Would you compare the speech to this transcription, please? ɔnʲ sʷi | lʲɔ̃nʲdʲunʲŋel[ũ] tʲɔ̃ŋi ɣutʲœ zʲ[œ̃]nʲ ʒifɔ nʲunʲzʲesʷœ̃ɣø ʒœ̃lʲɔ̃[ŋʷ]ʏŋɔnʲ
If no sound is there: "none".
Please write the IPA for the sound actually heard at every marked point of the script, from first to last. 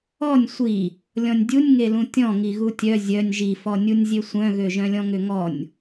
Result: ũ, œ, ŋ

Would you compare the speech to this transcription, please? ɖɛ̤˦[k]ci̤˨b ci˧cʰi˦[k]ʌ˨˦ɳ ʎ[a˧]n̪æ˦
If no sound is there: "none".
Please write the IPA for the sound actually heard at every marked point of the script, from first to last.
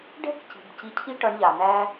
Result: k, ʈ, a˨

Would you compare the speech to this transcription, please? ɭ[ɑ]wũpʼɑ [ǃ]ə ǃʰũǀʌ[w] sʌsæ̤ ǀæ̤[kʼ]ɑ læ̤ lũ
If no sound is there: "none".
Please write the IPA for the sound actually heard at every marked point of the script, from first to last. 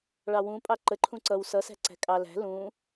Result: ɑ, ǃ, w, kʼ

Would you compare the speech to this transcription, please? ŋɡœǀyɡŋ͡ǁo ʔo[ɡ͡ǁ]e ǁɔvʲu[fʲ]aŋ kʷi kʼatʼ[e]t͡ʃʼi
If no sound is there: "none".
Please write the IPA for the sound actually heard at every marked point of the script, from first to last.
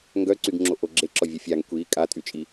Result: ɡ͡ǁ, fʲ, y

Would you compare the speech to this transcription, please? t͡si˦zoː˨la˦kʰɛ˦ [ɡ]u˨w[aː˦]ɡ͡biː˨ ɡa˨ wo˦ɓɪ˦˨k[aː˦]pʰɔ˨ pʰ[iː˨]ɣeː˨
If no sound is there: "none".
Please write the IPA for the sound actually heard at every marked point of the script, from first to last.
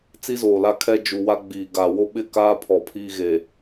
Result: d͡ʒ, a˦, aː˦, iː˦

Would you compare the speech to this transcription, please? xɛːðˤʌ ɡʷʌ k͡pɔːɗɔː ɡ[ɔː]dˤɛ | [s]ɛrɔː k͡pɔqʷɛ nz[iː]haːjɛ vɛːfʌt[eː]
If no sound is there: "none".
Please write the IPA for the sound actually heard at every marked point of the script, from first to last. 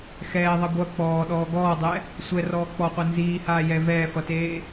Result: ɔː, sʷ, iː, eː

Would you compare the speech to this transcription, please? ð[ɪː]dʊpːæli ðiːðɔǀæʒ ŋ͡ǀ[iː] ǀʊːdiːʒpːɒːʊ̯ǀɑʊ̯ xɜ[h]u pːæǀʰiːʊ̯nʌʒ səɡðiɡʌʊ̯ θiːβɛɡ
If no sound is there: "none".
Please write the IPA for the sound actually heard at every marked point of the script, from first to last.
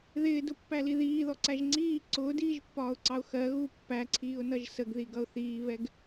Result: ɪː, iː, ɣ

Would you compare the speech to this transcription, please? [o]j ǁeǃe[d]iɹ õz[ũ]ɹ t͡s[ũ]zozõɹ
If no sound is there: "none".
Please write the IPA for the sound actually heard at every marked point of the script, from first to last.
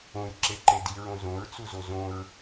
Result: õ, d, õ, u

